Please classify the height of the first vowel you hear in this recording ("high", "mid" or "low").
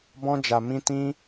mid